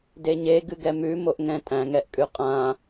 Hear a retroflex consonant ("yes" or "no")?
no